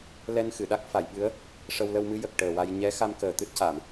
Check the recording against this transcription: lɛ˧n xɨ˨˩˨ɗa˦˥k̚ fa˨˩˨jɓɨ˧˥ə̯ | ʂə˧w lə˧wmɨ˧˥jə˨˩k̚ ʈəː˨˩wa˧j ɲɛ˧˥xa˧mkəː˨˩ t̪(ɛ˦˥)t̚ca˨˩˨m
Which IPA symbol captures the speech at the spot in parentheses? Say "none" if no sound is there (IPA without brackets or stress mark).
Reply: ɨ˦˥